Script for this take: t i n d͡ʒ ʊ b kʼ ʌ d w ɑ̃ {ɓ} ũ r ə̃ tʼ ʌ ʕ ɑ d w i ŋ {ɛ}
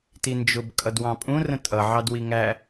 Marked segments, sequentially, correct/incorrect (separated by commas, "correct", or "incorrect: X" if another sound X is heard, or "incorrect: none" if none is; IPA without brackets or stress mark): incorrect: pʼ, incorrect: æ